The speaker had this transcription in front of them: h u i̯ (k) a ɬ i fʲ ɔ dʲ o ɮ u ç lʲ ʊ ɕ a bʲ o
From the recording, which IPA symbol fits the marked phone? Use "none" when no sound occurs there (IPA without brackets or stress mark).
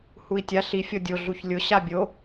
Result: tʲ